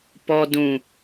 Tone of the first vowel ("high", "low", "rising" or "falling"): low